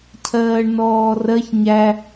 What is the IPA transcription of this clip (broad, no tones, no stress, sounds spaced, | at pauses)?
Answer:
cʰ ɜː ɳ n ɔː r ɜ ç ɲ æ